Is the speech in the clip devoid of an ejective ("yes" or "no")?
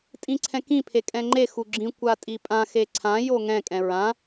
no